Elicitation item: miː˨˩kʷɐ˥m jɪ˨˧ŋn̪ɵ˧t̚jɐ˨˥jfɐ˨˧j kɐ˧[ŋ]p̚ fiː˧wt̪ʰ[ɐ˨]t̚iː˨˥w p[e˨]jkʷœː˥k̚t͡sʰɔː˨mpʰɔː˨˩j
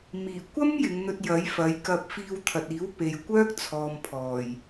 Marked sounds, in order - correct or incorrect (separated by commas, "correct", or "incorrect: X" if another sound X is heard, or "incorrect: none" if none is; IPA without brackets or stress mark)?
incorrect: none, correct, correct